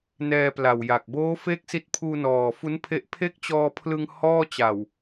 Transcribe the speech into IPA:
n ɛː˧ p l a˨˩ w j a˨˩ k̚ b oː˦˥ f e˥˩ k̚ s i˦˥ t̚ pʰ uː˧ n ɔː˨˩ f u˦˥ n pʰ e˦˥ ʔ pʰ e˥˩ k̚ t͡ɕ ɔː˧ pʰ l ɯ˧ ŋ h ɔː˥˩ t͡ɕ a˨˩ w

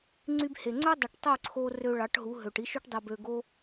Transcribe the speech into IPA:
ŋ͡ǀ y˧ b h e˨ ŋ͡ǀ ø˦ dˤ o˨ ʈ tˤ ø˦˨ ǀʰ o˧ r ø˧ ɭ ɑ˨˦ ʈ ɦ u˨˦ ɦ ø˨ ʈ i˧ ʃ y˧ ʈ dˤ ø˧ b ø˧ ɡ o˦

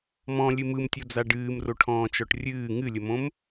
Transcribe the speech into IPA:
m ɔ̃ lʲ ɨ m ɯ m tʲ o d͡z a ɖ ɨː m r o ʈʰ ɔ̃ː t͡ʃ ɔ ʈ rʲ ɨː ŋ ɨ lʲ ə m õ m

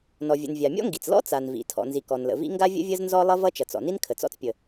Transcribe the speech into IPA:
n ɔ˩ vʲ ə̰˩ n vʲ a˩ mʲ ɔ̰˥ ŋ ɡ i˩ t͡s l ɔ̰˥ t͡s a˩ n v ḭ˩ tʰ ɔ̰˩ n z i˩ k ɔ˩ n l ə̰˩ v ḭ˥ ŋ ɡ a˥ vʲ ə̰˥ vʲ ə˥ z n z ɔ˥ lˠ ʌ˥ v ʌ˥ t͡ʃ ʌ˩ t͡s ɔ̰˩ n i˥ n kʰ ə˩ t͡s ɔ̰˥ t͡s pʲ ə˩

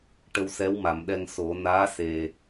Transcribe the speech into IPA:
ʈ ə˧ w s ɛ˧˥ w m a˨˩˨ m ɗ ɛ˧ ŋ s o˨˩˦ n aː˧˥ s e˨˩

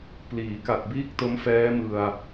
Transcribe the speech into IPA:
p l iː˩˦ k a˨˩ t̚ b iː˥˩ k̚ t o˦˥ m f ɛː˦˥ m ɯ˧ a̯

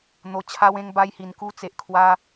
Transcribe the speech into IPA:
n̪ o˧ t͡ɕʰ a˦ w ẽ˦ ŋ b a˦ j h i˧ n k u˦ t͡s e˨ ʔ kʰ w a˦

